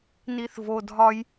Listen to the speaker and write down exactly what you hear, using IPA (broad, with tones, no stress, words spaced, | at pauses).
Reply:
ni˧θ vo˧ dʱɒ˥j